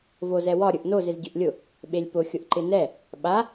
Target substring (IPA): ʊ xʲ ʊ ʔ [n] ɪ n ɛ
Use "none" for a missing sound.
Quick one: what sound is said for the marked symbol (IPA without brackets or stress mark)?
ǃ